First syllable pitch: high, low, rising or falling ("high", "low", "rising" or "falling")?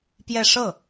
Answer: falling